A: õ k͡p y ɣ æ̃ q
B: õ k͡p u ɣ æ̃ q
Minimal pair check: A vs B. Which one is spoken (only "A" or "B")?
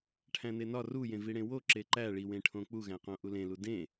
B